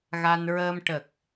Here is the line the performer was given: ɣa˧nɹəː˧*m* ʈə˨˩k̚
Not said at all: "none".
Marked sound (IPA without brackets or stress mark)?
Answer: m